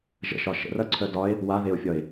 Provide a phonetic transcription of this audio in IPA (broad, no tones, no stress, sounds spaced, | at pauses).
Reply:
ʒ ə̰ ʃ ɒ ʃ ə̰ r ɐ ǀʰ œ d ɒ e̯ | w a ð e o̯ fʲ ɒ e̯